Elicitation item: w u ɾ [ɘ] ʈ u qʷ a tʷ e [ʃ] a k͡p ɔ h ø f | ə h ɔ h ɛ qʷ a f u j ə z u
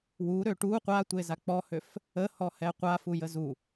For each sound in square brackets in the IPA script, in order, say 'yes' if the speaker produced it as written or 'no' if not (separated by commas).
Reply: no, no